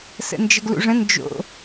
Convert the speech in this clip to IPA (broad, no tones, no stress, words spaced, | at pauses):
sə̰nd͡ʒəɡlṵʐə̃ nd͡ʒo̰